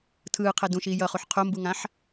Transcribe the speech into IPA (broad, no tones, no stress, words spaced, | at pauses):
tʰɯːqʰɛ dũʃiː jʌχuħ qʰombuŋãħ